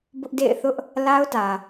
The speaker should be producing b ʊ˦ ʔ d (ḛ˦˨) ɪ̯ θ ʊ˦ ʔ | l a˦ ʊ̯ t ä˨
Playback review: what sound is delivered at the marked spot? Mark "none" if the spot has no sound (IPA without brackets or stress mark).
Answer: ḛ˦˨